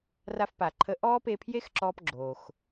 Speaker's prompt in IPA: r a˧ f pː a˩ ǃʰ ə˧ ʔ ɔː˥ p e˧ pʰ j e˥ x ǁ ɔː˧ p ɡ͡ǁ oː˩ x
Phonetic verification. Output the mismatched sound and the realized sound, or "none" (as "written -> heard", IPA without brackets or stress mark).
pː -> p